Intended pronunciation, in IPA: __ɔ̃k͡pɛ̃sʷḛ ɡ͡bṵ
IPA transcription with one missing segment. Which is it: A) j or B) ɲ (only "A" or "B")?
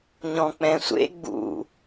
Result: B